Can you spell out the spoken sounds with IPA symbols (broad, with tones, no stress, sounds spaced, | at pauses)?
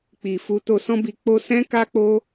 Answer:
k͡p i˨ f u˧ t o˧ s ɔ̃˦ b i˧ k͡p o˦ s ɛ̃˦ k a˦ k͡p o˦